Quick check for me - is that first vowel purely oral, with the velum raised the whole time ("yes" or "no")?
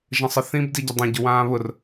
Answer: no